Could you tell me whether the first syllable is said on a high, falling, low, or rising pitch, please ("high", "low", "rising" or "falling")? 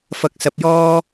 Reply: rising